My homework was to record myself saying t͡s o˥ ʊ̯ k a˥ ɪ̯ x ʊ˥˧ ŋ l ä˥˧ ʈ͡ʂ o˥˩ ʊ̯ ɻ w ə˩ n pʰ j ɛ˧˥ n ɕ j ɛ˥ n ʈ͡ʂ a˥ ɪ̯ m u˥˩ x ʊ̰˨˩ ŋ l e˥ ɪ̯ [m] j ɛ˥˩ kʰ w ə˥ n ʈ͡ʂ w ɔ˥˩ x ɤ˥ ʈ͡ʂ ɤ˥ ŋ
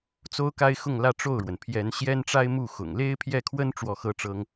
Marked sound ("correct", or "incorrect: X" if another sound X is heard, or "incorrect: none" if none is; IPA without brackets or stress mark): incorrect: pʰ